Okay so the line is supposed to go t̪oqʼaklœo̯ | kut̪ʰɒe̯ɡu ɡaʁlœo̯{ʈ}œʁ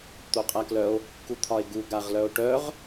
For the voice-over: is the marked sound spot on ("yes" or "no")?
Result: yes